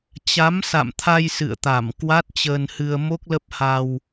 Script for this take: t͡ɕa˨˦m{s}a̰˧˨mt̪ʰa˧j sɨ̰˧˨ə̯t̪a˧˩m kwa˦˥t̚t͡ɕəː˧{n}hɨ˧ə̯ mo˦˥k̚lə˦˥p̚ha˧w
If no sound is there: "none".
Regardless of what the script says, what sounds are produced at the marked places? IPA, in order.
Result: s, n

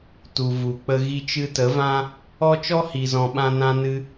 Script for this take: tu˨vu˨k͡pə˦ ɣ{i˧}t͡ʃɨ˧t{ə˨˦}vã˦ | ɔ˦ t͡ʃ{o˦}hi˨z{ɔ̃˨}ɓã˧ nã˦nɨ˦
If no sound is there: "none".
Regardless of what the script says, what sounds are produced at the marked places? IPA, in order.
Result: i˧, ə˨˦, ɔ˦, ɔ̃˨

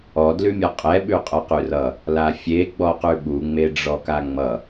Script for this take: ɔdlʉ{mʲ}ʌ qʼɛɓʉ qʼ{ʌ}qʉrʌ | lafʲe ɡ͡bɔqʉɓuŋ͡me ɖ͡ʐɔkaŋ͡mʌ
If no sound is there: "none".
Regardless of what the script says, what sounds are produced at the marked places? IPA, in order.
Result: mʲ, ʌ

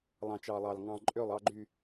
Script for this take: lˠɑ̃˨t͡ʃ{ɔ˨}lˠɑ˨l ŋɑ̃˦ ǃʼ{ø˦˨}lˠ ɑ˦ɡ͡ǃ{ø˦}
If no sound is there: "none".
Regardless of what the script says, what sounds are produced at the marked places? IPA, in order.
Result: ɑ˨, ø˦˨, y˦

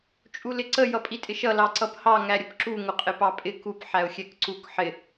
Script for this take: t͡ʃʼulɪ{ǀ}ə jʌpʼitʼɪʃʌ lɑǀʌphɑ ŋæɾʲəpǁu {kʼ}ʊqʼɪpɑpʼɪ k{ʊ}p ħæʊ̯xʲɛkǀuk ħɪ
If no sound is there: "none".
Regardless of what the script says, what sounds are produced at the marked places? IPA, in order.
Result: ǀ, ŋ, u

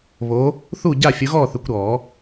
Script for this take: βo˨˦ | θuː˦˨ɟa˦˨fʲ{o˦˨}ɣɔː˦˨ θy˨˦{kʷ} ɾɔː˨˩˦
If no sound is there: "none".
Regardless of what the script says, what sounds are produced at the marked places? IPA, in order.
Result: o˨˦, kʷ

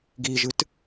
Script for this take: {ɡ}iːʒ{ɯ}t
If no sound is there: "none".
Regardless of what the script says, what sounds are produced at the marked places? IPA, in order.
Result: ɡ, ɯ

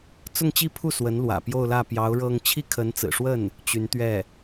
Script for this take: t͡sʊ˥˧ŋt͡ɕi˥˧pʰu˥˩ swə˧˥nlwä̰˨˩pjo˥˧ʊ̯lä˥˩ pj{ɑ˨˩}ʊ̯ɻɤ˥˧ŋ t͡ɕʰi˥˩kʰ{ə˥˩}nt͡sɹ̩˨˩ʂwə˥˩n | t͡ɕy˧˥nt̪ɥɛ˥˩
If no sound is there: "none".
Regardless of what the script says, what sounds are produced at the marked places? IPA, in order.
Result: ɑ˧˥, ə˧˥

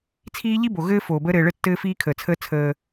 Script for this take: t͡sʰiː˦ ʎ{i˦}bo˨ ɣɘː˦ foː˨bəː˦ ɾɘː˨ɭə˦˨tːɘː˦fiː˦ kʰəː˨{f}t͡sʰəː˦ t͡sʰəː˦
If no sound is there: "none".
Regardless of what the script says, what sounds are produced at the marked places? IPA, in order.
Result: i˦, none

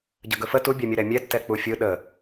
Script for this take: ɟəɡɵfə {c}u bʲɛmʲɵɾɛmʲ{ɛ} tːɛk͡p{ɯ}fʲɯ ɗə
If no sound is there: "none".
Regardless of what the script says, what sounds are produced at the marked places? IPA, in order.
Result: t, ɛ, u

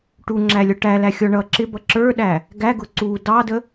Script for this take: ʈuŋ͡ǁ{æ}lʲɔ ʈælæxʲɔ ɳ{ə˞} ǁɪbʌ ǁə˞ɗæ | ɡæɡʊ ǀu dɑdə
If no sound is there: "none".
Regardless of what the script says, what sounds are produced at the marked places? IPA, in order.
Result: æ, ʌ

